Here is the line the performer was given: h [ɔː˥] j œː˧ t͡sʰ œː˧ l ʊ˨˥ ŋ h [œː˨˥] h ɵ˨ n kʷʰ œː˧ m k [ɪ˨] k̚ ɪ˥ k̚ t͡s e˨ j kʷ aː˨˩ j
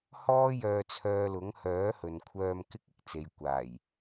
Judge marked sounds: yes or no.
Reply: yes, yes, no

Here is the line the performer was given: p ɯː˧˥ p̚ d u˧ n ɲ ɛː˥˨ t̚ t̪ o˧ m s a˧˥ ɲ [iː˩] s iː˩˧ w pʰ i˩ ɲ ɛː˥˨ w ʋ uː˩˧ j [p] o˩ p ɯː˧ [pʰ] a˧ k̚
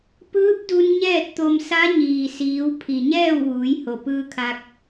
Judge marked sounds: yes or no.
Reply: yes, no, no

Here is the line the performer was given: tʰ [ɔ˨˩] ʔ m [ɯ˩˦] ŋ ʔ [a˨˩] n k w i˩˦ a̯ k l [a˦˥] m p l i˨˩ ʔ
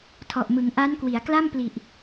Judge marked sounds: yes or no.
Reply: yes, yes, no, no

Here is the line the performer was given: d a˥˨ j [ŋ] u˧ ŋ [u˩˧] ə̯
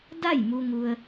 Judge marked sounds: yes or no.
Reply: no, no

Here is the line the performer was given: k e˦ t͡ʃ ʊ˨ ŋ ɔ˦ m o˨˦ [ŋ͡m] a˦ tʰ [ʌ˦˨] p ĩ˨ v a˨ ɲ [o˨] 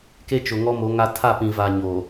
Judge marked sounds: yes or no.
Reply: no, no, yes

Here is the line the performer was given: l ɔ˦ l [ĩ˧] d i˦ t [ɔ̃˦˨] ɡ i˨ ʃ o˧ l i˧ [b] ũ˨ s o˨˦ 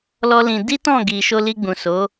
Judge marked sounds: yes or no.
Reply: yes, yes, no

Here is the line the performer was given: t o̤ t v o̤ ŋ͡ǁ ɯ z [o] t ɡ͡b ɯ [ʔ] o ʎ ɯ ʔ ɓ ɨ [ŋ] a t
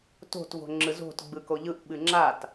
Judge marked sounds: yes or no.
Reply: no, no, no

